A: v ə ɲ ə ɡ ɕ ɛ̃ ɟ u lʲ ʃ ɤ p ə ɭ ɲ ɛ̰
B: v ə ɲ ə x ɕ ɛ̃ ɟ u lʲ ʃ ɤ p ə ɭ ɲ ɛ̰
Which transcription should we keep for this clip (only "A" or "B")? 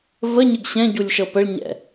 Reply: A